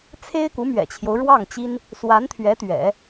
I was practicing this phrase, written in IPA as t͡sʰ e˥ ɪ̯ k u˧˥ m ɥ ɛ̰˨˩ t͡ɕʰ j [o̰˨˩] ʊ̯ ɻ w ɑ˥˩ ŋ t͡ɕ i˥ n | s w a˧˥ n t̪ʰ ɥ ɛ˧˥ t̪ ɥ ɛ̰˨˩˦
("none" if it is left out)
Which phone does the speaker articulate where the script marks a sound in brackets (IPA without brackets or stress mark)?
o˦